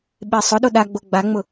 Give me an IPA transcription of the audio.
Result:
ɓ e sˤ ʊ ɗ o ɗ a ɡ͡b o ɡ͡b a ŋ͡m ʊ

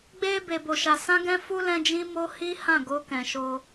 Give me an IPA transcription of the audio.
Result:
ɡ͡b e˧ b e˧ b o˧ ʃ a˧ s ã˦ ɡ ɛ̃˦ f u˦ l ɛ̃˦ d͡ʒ ĩ˦ m o˦ h i˦ h ã˦˨ ɡ o˧ k ɛ̃˨ ʃ o˧

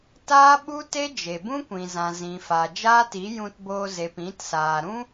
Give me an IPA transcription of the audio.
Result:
t aː˦ ɓ u˦ t e˦ d͡ʒ e˨ b ũ˦ kʷ ĩ˨ z ã˨ z ĩ˨ f a˨ d͡ʒ aː˦ t i˨˦ j ũ˧ t b oː˧ z e˨ p ĩ˨˦ t s aː˨ ɾ ũ˦

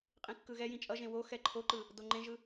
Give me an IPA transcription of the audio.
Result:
qʼ ĩ kː ɯ ɣ ɛ j ĩ t͡ʃʼ ʌ ʒ ẽ w o x ɛ ǃʰ o ǃ ɯ | d o ŋ͡ǃ ẽ ʒ ɯ

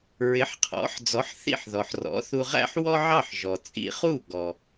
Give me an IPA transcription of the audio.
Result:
ɹ ɪ˩˥ ħ qʰ ɔ̰˩˥ ħ d͡z ɔ˩˥ ħ θ ḭ˥˩ ħ ð ɔ˩ ħ r ɔ̰˩˥ θ u˧ ʁ æ̰˥ ħ w ɔ˥ ʕ ɑ˥˩ ħ ʒ ɔ˩ t͡sʼ ḭ˧ χ u˥˩ ɡ ɔ˩

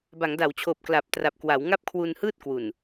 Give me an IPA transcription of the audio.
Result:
b a˩˦ ŋ d a˩˦ w t͡ɕʰ oː˨˩ p̚ k l a˨˩ p̚ t r a˨˩ p̚ k w a˩˦ w ŋ a˥˩ p̚ kʰ w u˧ n h ɯː˥˩ t̚ k w u˨˩ n

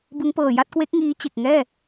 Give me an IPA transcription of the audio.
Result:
b ɯ˦˥ ŋ p ɤː˨˩ j a˥˩ t̚ k w e˦˥ k̚ ŋ iː˦˥ t͡ɕ e˨˩ k̚ ŋ ɛː˥˩

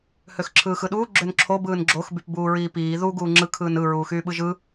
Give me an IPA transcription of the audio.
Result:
h ø x ǁʰ ɯː x ɯ ɗ uː ɡ͡ǁ ø n ǁʰ o b ɯː n ɡ͡ǁ o x b y p b uː ɹ iː p iː ð u ɡ uː ŋ͡ǁ ɯ kʰ ɯː n ɯ ɹ uː x yː ɓ ɯ ʒ ɯ

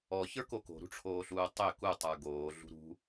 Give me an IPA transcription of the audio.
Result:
ɔ ç ə˞ k o k o̤ ɾ ṳ ʈ͡ʂʰ oː ɬ uː tˤ ʏ k u tˤ ə˞ ɡ oː ɮ ṳ ɾ ṳ

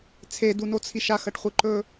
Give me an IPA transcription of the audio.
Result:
t͡sʰ e d u n o t͡sʰ i ʃ a x ɐ ʈ χʷ ɨ ǃ ɵ

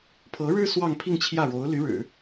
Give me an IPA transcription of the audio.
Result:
pʰ ɤ˧˥ ɻ ɻ̩˥ s w ɑ˥˧ ŋ pʰ i˥˧ ŋ t͡ɕʰ j ä˥˩ ɻ o˧˥ ʊ̯ l y˧˥ ɻ ɻ̩˨˩˦

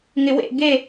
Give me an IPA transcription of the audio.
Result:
ŋ ɪ w ḛ ɡ e

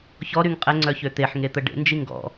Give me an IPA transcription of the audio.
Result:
ç ɔ ɾ y ŋ qʼ ɛ ŋ͡ǀ œ ç ø t̪ e ħ ŋ e t̪ ə ɖ ḛ n d͡ʒ i ŋ ɡ ɔ̰

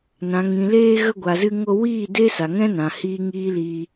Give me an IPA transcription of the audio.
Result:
n ã˨ ŋ ĩ˨ l eː˧ ɣ ə˧ ɡʷ a˨ z ɨ˧ ŋ o˧ w iː˦˨ d eː˦ s a˨ ŋ ɛ̃˦ n ã˨ h iː˦ ŋ iː˦ l iː˧

